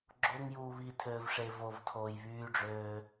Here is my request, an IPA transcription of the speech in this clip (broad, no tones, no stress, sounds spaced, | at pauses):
ɡ͡ǁ o ŋ j uː β i tʰ øː v ʂ e v o v tʰ oː j β yː ɖ͡ʐ øː